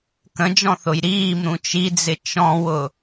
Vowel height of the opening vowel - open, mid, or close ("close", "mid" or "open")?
mid